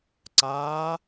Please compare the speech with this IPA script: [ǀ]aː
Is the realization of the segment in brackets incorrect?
no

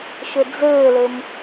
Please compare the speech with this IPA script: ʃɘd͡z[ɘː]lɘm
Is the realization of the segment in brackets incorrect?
no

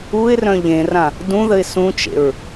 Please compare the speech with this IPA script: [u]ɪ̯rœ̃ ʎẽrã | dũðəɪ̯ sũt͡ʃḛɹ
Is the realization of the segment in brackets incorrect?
no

